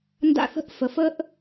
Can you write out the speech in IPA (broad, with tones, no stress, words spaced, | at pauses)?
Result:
nda̰˦θə̤˦ʔ fə˨fə˦ʔ